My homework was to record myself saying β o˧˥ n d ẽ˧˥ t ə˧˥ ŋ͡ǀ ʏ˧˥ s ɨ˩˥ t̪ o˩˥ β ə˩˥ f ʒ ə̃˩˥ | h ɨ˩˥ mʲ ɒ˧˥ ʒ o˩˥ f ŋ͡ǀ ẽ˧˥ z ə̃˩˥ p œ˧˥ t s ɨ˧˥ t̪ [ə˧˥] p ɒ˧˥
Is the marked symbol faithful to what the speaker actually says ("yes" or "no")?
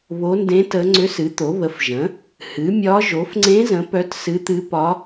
no